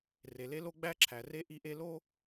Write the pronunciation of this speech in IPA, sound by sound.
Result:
r e˨ l e˦ l o˦ ɡ͡b æ˦ ǁʰ æ˨ r e˦ ʔ i˦ ʔ e˦ l o˦

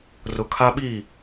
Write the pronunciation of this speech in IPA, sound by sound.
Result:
r ʊ˨ kʰ a˦ ɓ i˦˨

